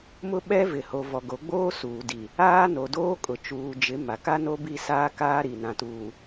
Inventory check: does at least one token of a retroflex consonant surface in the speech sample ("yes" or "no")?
no